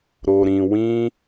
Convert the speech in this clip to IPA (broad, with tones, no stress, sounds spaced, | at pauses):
ɾ o˨ ɾ ĩ˨ w ĩ˦